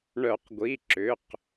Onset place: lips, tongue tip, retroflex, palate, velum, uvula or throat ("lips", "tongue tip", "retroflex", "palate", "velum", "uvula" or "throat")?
retroflex